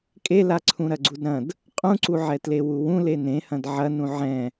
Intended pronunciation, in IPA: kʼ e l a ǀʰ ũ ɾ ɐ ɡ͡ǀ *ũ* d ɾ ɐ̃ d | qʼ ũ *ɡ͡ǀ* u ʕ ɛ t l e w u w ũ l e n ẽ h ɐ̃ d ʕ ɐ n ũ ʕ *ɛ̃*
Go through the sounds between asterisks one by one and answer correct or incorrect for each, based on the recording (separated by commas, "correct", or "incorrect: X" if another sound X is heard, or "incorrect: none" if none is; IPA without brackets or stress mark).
incorrect: u, incorrect: ǀ, correct